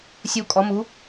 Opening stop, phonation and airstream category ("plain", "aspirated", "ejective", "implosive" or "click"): ejective